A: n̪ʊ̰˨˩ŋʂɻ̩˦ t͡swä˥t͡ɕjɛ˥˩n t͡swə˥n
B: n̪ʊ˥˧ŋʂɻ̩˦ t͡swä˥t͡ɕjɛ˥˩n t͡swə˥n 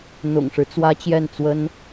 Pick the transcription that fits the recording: A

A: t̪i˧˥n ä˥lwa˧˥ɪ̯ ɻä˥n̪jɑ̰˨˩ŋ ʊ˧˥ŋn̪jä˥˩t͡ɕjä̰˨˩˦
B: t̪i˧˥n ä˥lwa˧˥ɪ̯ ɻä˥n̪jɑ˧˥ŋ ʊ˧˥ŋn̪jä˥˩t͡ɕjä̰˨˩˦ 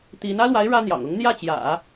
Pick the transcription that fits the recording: A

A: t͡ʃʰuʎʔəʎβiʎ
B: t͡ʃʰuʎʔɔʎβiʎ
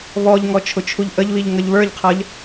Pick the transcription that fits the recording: A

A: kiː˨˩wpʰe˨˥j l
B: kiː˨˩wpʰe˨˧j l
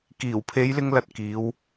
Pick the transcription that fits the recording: B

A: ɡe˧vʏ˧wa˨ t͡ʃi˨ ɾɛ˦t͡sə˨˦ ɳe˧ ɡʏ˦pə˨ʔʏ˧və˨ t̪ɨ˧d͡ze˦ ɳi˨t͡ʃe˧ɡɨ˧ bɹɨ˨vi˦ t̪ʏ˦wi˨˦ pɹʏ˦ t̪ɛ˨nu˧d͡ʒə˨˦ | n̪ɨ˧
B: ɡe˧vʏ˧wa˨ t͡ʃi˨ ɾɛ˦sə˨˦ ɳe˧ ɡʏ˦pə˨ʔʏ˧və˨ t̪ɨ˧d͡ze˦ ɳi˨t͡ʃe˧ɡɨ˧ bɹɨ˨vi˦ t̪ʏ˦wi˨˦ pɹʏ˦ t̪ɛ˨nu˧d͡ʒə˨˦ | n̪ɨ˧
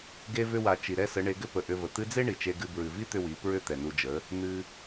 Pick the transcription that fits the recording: B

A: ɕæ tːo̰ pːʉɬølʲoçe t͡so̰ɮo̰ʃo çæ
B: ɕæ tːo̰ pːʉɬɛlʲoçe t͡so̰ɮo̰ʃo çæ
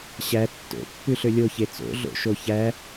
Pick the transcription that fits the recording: A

